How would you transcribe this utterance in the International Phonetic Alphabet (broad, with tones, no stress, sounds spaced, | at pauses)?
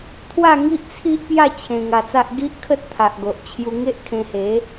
t̪ʰ w a˥˧ ŋ i˦ ʔ t͡sʰ i˦ ʔ p j a˥˧ t͡ɕʰ ẽ˧ ŋ a˧ t͡s a˦ ʔ ɡ i˦ ʔ kʰ ə˦ t̚ t̪ʰ a˨ ʔ ɡ o˨ ʔ t͡ɕʰ j u˧ ŋ e˦ ʔ kʰ ẽ˧ h e˨˦